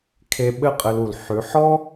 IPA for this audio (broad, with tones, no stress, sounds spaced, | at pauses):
kʰ e˧ ɓ ɘ˦ qʼ ɘ˧ l u˨ l ħ ʉ˨˦ ħ ɔ˦